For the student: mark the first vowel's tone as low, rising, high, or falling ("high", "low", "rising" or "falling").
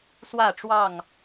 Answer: falling